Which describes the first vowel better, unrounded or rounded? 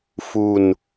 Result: rounded